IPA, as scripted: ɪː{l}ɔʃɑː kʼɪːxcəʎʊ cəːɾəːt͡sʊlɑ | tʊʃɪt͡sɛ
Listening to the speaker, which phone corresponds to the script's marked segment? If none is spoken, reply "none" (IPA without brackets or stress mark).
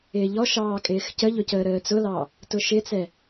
ʎ